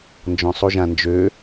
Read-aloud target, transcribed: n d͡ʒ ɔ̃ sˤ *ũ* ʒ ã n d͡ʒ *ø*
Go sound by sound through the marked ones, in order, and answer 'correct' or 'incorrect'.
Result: incorrect: u, correct

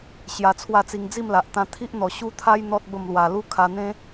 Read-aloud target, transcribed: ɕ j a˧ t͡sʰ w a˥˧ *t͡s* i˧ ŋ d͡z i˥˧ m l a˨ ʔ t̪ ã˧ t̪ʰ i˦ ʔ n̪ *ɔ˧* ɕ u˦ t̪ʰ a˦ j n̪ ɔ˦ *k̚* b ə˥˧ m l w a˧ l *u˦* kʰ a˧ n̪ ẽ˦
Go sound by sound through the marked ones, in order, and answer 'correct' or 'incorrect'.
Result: correct, incorrect: ɔ˨˩, incorrect: t̚, correct

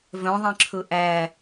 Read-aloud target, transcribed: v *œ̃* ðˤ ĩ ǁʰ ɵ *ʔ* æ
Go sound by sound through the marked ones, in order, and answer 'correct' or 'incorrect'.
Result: correct, correct

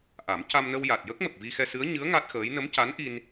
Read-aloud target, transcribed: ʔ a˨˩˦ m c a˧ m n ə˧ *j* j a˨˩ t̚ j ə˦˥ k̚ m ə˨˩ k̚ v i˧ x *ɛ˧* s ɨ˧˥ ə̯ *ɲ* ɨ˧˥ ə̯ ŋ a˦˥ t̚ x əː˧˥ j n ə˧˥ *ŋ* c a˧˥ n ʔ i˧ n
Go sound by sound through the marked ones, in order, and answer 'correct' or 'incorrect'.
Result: incorrect: w, correct, correct, incorrect: m

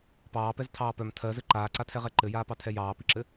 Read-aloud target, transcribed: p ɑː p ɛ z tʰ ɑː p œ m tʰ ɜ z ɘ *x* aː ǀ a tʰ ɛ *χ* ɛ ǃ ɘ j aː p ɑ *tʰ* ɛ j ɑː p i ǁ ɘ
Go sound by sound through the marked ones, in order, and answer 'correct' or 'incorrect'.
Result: incorrect: ǃ, incorrect: ʁ, correct

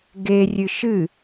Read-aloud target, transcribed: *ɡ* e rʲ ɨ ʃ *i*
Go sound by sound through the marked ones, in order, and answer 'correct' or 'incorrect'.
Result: correct, incorrect: ɨ

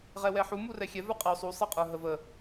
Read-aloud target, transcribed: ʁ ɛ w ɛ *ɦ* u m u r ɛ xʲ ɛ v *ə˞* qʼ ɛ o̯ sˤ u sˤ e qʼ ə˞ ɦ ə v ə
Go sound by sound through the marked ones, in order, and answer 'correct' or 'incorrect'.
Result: incorrect: ħ, correct

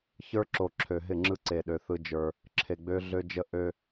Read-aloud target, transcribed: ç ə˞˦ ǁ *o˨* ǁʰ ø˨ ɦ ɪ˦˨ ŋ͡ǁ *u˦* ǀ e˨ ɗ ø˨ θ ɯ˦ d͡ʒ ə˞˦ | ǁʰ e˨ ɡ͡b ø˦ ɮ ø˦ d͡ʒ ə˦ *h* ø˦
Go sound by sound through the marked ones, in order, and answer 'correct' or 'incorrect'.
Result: correct, incorrect: ɯ˦, incorrect: ʔ

